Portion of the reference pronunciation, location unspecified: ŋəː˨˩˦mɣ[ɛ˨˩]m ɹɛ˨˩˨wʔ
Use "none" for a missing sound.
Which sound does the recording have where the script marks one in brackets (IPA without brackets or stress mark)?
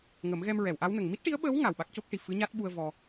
ɛ˧